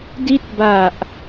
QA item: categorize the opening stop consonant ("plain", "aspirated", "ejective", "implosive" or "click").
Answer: plain